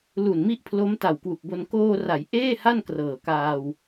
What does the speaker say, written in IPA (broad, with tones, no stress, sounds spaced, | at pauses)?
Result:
l u˨˩ n m i˦˥ ʔ pʰ l o˦˥ m t a˨˩ w k w u˨˩ k̚ b o˧ n k oː˧ r a˩˦ j ʔ eː˥˩ h a˥˩ n k r ɤː˨˩ k aː˧ w